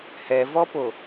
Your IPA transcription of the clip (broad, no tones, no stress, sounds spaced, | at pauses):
h ɛ v ɔ p o